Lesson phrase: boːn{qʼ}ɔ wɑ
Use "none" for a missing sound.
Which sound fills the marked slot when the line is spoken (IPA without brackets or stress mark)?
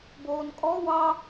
kʼ